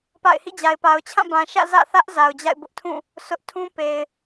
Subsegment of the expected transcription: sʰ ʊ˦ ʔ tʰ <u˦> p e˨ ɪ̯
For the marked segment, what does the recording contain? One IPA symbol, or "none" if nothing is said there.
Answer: ũ˦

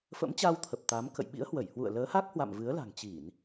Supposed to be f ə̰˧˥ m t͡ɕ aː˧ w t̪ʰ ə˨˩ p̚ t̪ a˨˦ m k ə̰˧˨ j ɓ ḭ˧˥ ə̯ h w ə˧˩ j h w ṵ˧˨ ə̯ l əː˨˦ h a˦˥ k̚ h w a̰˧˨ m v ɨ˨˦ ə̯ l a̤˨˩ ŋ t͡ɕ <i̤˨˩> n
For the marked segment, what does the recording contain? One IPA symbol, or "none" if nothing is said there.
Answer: i˧˩˨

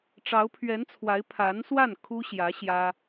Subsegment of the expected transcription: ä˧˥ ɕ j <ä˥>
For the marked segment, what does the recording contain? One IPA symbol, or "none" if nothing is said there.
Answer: ä˥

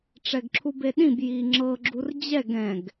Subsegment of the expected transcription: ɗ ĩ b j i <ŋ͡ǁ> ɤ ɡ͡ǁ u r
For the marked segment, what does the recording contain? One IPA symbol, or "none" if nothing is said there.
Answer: ŋ͡ǁ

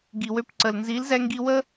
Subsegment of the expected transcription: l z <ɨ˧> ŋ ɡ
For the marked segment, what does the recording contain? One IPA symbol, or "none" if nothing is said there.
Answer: ɛ˧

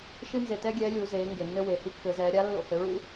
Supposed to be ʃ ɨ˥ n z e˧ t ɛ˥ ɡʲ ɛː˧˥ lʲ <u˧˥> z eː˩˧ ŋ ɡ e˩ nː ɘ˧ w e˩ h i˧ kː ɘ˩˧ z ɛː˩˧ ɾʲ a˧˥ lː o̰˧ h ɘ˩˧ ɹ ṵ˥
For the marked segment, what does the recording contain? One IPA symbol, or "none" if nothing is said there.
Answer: u˩˧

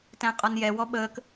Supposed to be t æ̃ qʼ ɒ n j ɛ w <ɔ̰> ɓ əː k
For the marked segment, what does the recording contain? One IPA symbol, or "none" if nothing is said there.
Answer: ɔ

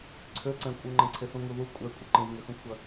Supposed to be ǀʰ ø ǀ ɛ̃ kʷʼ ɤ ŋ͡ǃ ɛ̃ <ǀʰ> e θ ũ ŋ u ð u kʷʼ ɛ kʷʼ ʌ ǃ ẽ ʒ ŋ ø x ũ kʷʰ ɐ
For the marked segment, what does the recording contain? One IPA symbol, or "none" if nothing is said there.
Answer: ǀʰ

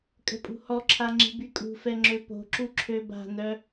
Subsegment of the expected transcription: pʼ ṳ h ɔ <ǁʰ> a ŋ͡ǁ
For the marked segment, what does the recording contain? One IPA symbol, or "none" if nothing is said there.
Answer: ǁʰ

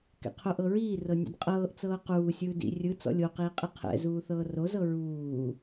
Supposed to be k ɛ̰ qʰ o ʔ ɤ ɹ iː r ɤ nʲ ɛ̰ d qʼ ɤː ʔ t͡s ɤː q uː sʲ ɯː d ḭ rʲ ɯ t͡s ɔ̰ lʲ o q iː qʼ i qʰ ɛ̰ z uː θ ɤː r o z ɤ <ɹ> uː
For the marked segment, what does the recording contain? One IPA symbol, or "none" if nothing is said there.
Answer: ɹ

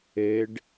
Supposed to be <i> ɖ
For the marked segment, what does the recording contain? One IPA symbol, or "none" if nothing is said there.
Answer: e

